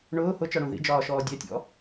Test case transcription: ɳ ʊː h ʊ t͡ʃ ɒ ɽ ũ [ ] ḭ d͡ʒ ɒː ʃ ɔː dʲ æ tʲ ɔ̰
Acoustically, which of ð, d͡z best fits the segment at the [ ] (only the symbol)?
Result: ð